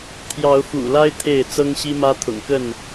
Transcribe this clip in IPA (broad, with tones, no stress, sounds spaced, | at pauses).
t̪ʰ j ɑ˨˦ ʊ̯ f ṵ˨˩ l a˦ ɪ̯ t̪ʰ e˥˨ ɪ̯ t͡s ɤ˦ ŋ ɕ i˦ m ä˦ t̪ʰ ʊ̰˨˩ ŋ k ə˥˨ n